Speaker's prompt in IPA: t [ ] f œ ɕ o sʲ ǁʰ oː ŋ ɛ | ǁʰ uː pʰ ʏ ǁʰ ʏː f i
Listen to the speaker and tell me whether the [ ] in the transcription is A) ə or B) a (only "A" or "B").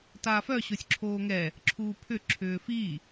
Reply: B